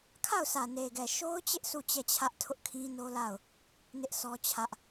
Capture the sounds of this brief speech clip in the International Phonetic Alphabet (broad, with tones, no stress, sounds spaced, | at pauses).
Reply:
kʰ a˦˨ ʊ̯ sʰ ä˨ n e˨ ɡ ɛ˨ ʃ o˦ ʊ̯ t͡ɕ ɪ˦ ʔ s u˦˨ t͡ɕ ɛ˦˨ t͡ɕʰ ä˦ ʔ tʰ ʊ˦ ʔ kʰ ĩ˦ n o˦ l a˦˨ ʊ̯ | n ɪ˦ ʔ s ɔ˦ t͡ɕʰ ä˦ ʔ